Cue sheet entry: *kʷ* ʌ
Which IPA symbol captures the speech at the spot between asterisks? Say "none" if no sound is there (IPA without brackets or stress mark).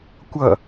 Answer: kʷ